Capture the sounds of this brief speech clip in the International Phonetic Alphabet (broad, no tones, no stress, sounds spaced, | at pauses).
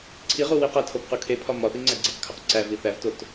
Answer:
ǀʰ i ʁ u w i q æ tʰ o p q u kʰ e pʰ ɒ m ɒ θ i ŋ͡ǀ æ ɡ͡ǀ i q kʰ o q ǀ æ v i θ æ v t o t